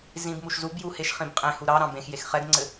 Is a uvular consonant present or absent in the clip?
present